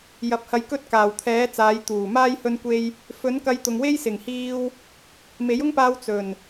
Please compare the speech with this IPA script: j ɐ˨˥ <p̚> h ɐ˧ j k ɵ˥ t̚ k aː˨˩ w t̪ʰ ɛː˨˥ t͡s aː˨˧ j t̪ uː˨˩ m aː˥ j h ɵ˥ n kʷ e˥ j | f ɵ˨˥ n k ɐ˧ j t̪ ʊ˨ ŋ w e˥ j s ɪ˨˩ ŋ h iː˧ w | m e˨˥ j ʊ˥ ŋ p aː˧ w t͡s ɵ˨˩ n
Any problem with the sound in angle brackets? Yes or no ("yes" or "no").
no